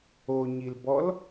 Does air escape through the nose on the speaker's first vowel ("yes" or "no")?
no